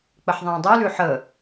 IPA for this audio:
k͡p ə ħ ðˤ ə̃ː dˤ ʉ l ʉ ħ ə

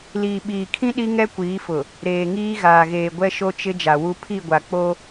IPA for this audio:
l iː˨ ɓ iː˨ kʰ ĩ˦ ɗ i˦ ŋ ɛ˦ kʷ iː˨˦ f ʊ˨ | ɾ eː˨ ŋ iː˦ ɣ aː˨ ɣ eː˨ ɡʷ ɛ˦ ʃ o˦ t͡ʃ ɪ˦ d͡ʒ a˨ w u˦ pʰ i˦˨ ɡʷ a˨ k͡p o˦

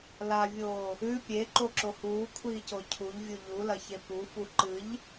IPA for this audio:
l a vʲ oː | ʉ pʲ e ǃ o ǁ o h uː kʷʰ iː c o cʰ u ʎ vʲ u ʎ u l ɐ ç e p u f u ǃ ɨ ʎ

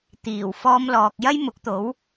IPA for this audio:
t̪ iː˨˩ w f ɔː˧ m l ɔː˨ k̚ j ɐ˥ j m ʊ˨˥ k̚ t̪ o˨˥ w

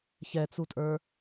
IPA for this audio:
ç ɛ t͡s u tʼ ə˞

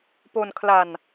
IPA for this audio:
p o˧ n kʰ l a˧ n

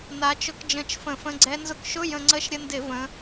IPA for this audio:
n a˩˧ t͡ʃ ʊ˧ k d͡ʒ ə̃˧˩˧ t͡ʃ f ə̃˧˩˧ f ə̃˧˥˧ ɡ͡ǀ ɛ˦˥ n z ʊ˧ k ʃ ʊ˧˥˧ j ə̃˧ ŋ͡ǀ ə˦˥ ʃ ɾʲ ə˧ n d ɪ˧˩˧ v ə̃˩˧

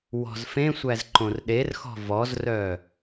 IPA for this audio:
w ɔ̤ z f ẽ sʷ æ z ǃ õ r ɗ e r x ɔ̤ v ɔ z r œ

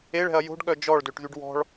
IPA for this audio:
e ɭ ɛ̤ ɐ̯ j o̤ ɖ ɠ œ d͡ʒ ɔ ɭ d ø ʈ ð y ɖ w ɔ̤ ɭ

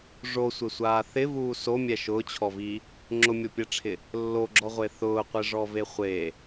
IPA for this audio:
ʐ o sʷ ɪ sʷ aː θ ɪ v uː s o mʲ ɛ ʃ ʊː t͡ɕʰ ɔ v i | ŋ͡ǁ ʊ mʲ o pʲ ɛ ʈ͡ʂʰ ɪ | lː o ɡ͡ǁ ɔ ʁʷ e θ ʊː qʷ ɪ ʐ ɔ v e χʷ e

